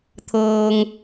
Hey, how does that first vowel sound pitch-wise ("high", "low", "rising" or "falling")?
low